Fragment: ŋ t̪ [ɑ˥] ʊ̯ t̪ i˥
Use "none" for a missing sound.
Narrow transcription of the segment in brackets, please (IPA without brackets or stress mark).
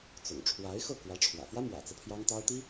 ɑ˥